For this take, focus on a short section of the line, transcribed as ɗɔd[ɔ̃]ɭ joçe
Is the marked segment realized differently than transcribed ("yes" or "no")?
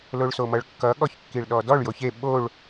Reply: yes